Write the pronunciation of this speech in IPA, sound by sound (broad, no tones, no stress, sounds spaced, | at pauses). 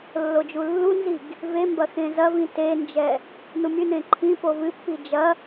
lː o d͡ʒ u lː u n z i ɡ | v e m b ɐ x ẽ z ɐ v ĩ t e n d͡ʒ ɛ | n u mʲ ɨ n ẽ ǃʰ ĩ p o v ɨ pː i d͡ʒ ɐ